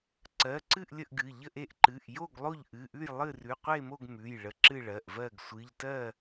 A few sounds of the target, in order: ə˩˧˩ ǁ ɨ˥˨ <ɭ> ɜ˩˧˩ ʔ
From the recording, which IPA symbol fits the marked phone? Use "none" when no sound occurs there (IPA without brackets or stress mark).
ɭ